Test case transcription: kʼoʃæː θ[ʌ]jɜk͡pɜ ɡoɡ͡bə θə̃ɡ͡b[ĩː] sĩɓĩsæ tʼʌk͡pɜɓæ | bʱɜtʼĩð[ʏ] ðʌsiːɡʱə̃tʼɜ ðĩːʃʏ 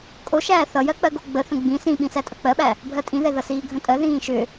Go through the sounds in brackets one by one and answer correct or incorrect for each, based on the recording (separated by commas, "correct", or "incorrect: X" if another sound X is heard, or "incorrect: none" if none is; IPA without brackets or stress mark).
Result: correct, incorrect: ĩ, incorrect: ɛ